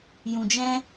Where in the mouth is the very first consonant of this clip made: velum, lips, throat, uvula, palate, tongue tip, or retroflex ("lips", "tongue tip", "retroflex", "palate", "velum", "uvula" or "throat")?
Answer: palate